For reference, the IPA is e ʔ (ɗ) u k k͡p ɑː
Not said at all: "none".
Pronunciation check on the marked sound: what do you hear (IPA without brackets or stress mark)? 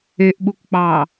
ɓ